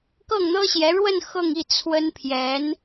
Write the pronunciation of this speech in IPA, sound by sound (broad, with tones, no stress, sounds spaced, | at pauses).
k ɤ˥˩ ŋ n̪ ɤ˥ ɕ j ɛ˧˥ ɻ w ə˥˧ n x ɤ˥˧ ŋ i˥˩ t͡sʰ w ə˥ n pʰ j ɛ˧˥ n